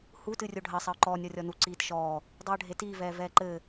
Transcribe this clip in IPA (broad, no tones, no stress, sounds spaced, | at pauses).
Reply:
h u t ɨ rʲ o ɖʱ ɐ sˤ ɐ ʊ̯ ǃ ɔː nʲ ɔ rʲ ɔ n u ǀ iː t ʃ ɔː | dˤ i ə̯ ɖʱ e t iː v ɛː v ɛː ǃ ɘ